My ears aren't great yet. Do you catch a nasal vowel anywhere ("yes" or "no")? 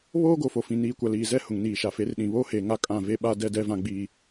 yes